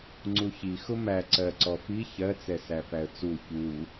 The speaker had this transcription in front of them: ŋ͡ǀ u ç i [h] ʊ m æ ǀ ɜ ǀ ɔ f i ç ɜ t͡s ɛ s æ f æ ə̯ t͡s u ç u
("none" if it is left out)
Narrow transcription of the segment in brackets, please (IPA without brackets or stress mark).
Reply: x